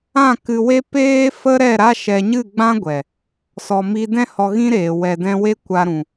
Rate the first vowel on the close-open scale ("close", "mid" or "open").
open